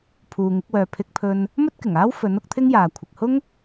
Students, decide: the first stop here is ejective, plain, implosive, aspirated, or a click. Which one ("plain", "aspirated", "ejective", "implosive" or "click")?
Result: aspirated